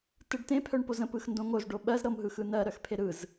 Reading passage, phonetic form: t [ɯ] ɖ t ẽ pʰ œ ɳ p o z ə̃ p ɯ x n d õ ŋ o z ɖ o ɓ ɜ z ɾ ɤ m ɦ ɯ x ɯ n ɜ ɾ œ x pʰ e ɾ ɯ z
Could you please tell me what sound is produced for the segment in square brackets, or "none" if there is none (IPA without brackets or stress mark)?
ɯ